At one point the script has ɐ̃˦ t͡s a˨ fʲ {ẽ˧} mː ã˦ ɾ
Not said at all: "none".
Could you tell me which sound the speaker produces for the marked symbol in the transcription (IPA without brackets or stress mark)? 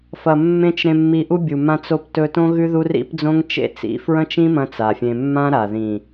ẽ˧